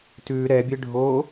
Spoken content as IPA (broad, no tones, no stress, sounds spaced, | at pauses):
t ʉ ɾ ɛ bʲ e ɖʱ o